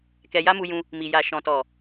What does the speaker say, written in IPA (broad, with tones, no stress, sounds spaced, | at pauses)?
k ɛ˧ j a˦ m u˧ j ũ˧ | m i˨ j a˨ ʃ ɔ̃˨ t ɔ˨